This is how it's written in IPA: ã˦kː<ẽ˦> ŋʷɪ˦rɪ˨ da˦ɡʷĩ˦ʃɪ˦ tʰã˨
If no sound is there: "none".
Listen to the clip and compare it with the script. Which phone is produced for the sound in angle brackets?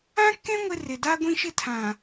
ẽ˦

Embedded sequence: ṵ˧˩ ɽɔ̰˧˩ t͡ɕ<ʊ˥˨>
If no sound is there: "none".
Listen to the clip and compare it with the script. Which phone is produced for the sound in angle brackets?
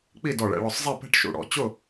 ʊ˥˨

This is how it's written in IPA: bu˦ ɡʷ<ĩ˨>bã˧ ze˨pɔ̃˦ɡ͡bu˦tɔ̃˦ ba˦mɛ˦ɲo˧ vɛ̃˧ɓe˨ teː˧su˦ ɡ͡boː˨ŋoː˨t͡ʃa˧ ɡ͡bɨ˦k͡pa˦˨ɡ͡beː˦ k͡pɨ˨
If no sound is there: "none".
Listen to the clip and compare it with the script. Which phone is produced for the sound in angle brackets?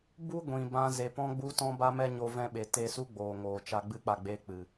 ĩ˨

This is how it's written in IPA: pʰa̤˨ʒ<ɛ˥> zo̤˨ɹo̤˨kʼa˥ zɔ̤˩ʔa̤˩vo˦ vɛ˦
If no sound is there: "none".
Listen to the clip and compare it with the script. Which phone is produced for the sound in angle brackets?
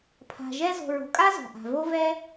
ɛ˥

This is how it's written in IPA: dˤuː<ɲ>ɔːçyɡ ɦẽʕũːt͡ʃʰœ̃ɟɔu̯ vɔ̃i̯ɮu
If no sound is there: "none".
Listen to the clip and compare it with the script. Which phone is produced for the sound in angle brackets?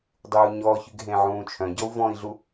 ɲ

